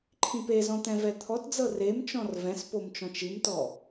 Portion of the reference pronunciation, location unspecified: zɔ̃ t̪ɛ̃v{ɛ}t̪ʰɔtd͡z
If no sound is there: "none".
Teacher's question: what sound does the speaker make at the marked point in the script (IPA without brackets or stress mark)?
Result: ɛ